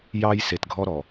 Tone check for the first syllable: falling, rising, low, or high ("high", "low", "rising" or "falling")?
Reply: high